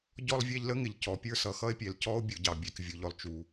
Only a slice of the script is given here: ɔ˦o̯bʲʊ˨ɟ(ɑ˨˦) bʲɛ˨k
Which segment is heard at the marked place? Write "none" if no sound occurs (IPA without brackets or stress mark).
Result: ɑ˨